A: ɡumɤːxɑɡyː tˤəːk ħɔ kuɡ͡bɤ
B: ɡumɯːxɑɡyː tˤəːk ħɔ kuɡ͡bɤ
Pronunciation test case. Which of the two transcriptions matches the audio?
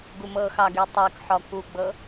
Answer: A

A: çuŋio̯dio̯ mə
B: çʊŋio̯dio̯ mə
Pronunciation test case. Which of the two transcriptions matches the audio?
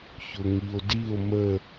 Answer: B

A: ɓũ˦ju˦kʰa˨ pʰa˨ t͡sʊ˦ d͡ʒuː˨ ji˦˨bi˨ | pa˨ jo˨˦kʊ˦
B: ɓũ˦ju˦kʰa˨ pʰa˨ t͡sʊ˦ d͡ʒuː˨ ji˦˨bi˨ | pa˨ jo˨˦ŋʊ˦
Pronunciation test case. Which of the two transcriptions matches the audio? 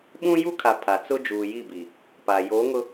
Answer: B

